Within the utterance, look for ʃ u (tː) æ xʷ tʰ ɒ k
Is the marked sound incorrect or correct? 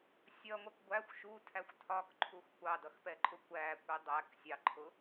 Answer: incorrect